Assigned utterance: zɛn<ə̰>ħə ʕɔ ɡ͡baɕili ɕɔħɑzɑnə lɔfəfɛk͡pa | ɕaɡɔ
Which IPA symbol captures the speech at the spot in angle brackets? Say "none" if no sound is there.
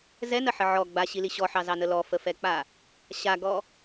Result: ə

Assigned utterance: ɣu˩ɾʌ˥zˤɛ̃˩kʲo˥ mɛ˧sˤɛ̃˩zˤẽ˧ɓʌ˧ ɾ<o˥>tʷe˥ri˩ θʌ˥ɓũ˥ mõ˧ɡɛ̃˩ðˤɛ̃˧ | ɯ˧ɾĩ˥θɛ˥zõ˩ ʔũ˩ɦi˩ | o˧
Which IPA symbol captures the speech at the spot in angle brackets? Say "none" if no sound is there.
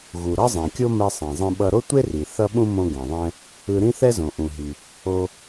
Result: o˥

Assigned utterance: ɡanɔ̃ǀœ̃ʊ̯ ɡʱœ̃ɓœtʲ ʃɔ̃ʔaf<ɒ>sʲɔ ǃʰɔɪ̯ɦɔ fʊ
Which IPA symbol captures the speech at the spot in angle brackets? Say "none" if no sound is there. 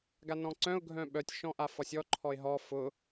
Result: ɒ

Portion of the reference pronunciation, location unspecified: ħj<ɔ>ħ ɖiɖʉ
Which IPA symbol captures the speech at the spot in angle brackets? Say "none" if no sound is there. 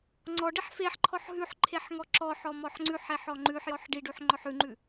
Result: ɔ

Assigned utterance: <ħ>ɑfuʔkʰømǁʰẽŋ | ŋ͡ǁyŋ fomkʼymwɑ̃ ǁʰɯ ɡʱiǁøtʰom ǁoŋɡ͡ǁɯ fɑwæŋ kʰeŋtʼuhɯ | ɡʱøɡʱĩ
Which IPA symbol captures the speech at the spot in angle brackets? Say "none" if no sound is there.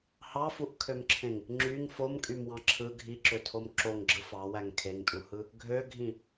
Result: h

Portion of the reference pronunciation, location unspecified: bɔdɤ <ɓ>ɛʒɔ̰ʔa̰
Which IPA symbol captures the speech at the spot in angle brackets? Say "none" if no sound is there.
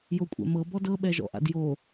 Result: ɓ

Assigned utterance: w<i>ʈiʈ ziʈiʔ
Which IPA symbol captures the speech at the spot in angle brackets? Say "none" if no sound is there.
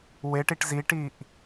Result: e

